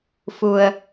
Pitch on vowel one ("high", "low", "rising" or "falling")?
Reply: low